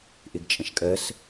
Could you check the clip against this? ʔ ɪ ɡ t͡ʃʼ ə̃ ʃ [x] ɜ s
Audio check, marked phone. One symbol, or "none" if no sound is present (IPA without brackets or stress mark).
kʼ